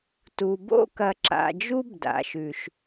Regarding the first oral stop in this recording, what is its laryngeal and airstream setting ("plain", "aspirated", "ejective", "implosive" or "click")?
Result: plain